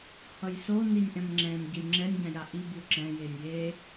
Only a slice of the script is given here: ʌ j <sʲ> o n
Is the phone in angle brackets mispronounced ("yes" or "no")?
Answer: yes